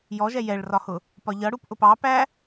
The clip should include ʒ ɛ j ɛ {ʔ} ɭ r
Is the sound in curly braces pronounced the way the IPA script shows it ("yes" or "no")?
no